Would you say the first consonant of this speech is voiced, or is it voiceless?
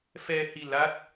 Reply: voiceless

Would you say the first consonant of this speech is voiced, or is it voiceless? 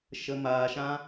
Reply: voiceless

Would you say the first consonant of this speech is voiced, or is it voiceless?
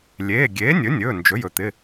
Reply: voiced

